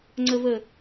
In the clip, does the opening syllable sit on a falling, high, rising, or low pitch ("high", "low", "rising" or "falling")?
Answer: low